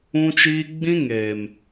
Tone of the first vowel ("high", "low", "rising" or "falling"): high